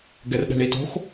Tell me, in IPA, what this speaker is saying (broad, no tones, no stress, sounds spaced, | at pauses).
ɡ ɛ r ɗ ɛ̤ ɳ i t o̤ x